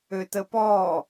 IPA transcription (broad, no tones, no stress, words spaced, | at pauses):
øtəpɔː